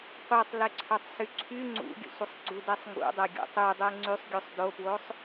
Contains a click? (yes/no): yes